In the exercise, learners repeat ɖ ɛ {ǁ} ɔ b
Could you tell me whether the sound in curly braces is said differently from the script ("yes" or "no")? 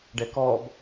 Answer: yes